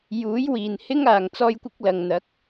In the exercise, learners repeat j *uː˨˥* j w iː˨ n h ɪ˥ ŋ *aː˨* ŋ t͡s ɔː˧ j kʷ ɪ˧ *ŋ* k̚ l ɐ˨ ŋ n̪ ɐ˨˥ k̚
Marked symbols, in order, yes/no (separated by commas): yes, yes, no